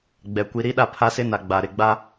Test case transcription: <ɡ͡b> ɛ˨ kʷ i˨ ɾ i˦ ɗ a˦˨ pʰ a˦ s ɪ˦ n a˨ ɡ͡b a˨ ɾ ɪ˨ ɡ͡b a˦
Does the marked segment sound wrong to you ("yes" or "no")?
no